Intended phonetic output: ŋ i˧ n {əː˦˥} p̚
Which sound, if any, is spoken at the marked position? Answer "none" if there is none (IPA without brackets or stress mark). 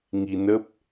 ə˦˥